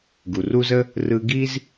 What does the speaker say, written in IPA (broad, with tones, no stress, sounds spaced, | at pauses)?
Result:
ɡ u˨ r u˦ z ə˦ | r ɯ˧ ɡ i˦ z